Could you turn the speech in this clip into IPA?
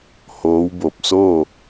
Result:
hoː˧˥wbo˧˩p̚ so˥˨

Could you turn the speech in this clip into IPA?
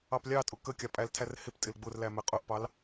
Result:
ɑplʲɑtʼʊ kə kʲɑpʼæltʰær hɪp tʼɪlɡ͡bʊrlæ mɛqʼʊʔpɑl

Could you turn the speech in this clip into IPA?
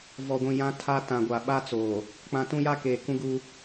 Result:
vɔ˨ɡʷĩ˨ jã˦tʰa˦tã˨ɡʷa˨ ɓa˦t͡soː˨ | k͡pã˨tũ˦ja˦ keː˨ kũ˦ɡuː˦

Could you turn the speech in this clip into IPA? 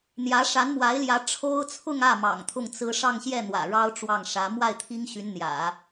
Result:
n̪jä˧˥ʂa˧˥nmwa˧˥ɪ̯ljä˧˥ ʈ͡ʂʰo˥ʊ̯t͡sʰʊ˥˧ŋä˥˩ mɑ̰˨˩ŋt̪ʰʊ˥˩ŋt͡sɹ̩˥ ʂɑ˥˧ŋɕjɛ˥˩ n̪wä̰˨˩ɻɑ˥ʊ̯ ʈ͡ʂwɑ˥˩ŋ ʂä˧˥ mwa˥˩ɪ̯t̪ʰi˥ŋ ɕy˧˥nn̪jä̰˨˩˦

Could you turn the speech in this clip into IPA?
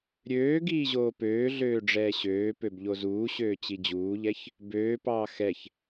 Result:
ɾʲøːɡiː ʑoːpøː ɮøːɖ͡ʐɛːɕøː pøbʎozuːɕøː t͡ɕid͡ʑuːʎɛç | bøːpɑː xɛç

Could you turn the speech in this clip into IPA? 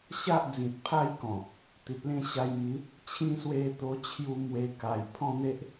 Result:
ɕa˦ʔ d͡zĩ˨t̚pʰa˥˧jkɔ̃˨˩ | t̪i˨t̚lẽ˥˧ɕa˧jmi˨˦ | t͡ɕʰĩ˦ swe˧t̪o˧t͡ɕʰju˧ mwe˧ ka˨˩jpʰɔ̃˥˧n̪e˦ʔ

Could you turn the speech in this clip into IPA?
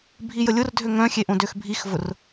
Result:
bʱijəlʲʊrdʱø ŋœ̃xʲeʔõ døxbʱixvʊr

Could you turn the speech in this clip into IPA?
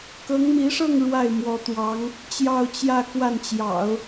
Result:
kɤ˧˥ŋmi˧˥ʂɤ˥˧ŋ ɻwa˥˩ɪ̯mwɔ˧˥t̪wɑ˧˥ŋ | t͡ɕjɑ˥˧ʊ̯t͡ɕjä˥˧ kwa˥˩nt͡ɕjɑ̰˨˩˦ʊ̯

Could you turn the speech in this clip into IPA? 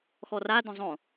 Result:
xɔradõ zˤõ

